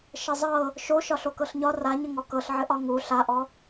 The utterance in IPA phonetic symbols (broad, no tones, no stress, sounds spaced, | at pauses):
ʃ ə zˤ ɤ | ʃ o ʃ ɒ ɬ o k ɤ ɬ ɲ ɒ r a ɲ ə ŋ ɔ k ɤ ɬ ʕ ɘ ʔ ɒ ŋ u ɬ a ʔ ɔ